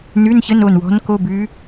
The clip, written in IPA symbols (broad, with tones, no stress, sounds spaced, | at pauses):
n ʉ˧˥˧ n ç ə˧˥˧ n o˥˩ n w ɔ̤˧˥ n k o˧˥˧ b ʉ˧˥